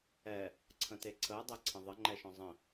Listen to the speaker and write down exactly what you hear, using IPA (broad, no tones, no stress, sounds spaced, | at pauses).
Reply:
ɛ | ǀʰ ə̃ t e ǀʰ əː dˤ ɛ ǀʰ ə̃ ðˤ ə ŋ͡ǃ ɛ ʃ ɔ̃ zˤ ə̃